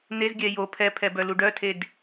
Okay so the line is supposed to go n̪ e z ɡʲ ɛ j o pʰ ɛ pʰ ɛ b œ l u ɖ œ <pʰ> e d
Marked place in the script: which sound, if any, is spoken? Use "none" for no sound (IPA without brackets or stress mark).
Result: tʰ